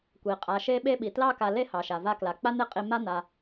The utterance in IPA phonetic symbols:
kʷ i˩ qʼ a˨ ʃ e˥ ɓ e˥ ɓ i˩ t l ɑ˦ k a˨ l e˦ h ɑ˩ ʃ a˩ v a˦ k l a˩ k͡p a˦ n̪ e˦ qʼ i˦ m a˥ n̪ a˨

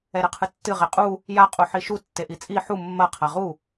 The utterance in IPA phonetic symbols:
ɛ ɾ ɘ qʰ ɨ tː ɨ ʁ e qʼ u | j a qʼ u ħ i ʃ u tː e ʔ i t͡sʼ i ħ u mː ɐ qʰ a ʁ u

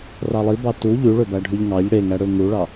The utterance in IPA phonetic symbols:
r ɑ lˠ i b ɑ t u ʎ y ɭ ø b æ ɖʱ y ʎ ŋ ɑ ʎ ɽ e ŋ æ ɽ ø ŋ u ɭ ɑ

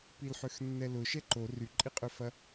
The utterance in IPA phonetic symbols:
p i l ħ ø x nː ɛ l ʊ ʃ ɛ ǃ o r y ǃʼ i qʼ ø f ɐ

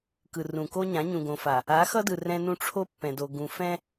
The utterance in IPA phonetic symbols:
k ɯ˨ r ũ˨ k o˦ ɲ ã˨˦ ɲ ũ˨ ɡ õ˨ f a˨ | a˨˦ x ʌ˦ d ɯ˨ r ɛ̃˦ n ũ˦ ʈ͡ʂʰ o˦ pː ɛ̃˨ d o˨ ɡ ũ˨ f ɛ̃˦

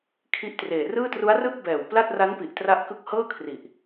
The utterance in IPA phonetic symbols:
kʰ i˦˥ ʔ t r eː˨˩ r ɯː˥˩ t r u˦˥ a̯ r ɯː˥˩ k̚ b ɛː˨˩ w p l a˥˩ t̚ r a˦˥ n p i˨˩ ʔ t r a˦˥ ʔ k ɯ˦˥ k̚ h ɤː˥˩ kʰ r i˨˩ ʔ

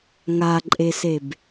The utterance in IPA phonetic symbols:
ŋ a ǃʼ e s e b

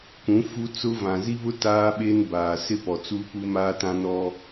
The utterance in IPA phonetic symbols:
k ũ˨˦ f u˦ t͡s ʊ˦ v ã˨ z i˦ β ʊ˦ t aː˦ ɓ e˦ n b aː˨ s ɪ˦ p ɔ˨ t͡s u˦ p u˦ m aː˦ t ã˦ n ɔ˦

